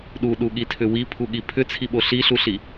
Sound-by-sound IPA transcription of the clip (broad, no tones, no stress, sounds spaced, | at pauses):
ɗ u ɗ u ɠ i tʰ ʏ w i pʰ u ɠ i pʰ ʏ t͡sʰ i ɓ o ɬ i ɬ u ɬ i